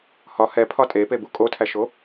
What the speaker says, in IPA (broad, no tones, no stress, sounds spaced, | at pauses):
h ɒ h ɛ pʰ ɒ tʼ e p e b u kʼ o tʰ æ ʃ o